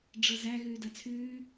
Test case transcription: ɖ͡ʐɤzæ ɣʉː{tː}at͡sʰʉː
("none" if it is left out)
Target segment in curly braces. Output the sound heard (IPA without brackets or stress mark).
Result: d